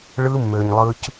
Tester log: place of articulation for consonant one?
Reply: retroflex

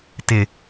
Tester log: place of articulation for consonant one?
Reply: alveolar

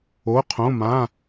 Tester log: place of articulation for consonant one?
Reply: uvular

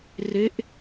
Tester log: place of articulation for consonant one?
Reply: alveolar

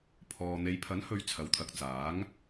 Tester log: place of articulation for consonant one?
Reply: labial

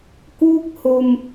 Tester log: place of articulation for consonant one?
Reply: velar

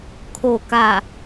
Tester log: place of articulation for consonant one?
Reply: velar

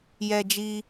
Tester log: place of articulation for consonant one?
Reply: palatal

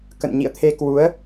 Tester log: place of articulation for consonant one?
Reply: velar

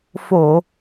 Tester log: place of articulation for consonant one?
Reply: labial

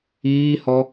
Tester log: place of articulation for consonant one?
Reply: glottal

